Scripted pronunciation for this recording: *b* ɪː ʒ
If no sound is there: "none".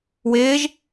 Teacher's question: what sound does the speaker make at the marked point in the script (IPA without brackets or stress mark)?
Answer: w